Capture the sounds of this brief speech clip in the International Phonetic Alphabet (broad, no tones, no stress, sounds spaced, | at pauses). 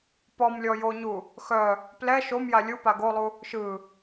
p ɔ m lʲ ɔ j o ɲ u | x œ | p l ɛ ʃ o m j a lʲ u p a ɡ o lˠ u | ʃ ɯ